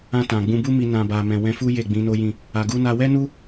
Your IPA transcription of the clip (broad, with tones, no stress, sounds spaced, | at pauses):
ã˧ t ã˨ ɡ͡b ũ˧ b u˦ m i˧ n ã˨ b a˨ m ɛ̃˨ w ɛ̃˧ f u˦ j e˦˨ ɡ͡b ĩ˨˦ n o˦ j ĩ˦˨ | a˨ ɡ u˧ n a˧ w ɛ˦ n u˦